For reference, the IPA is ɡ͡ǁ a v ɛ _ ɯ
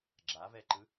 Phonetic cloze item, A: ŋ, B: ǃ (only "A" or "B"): B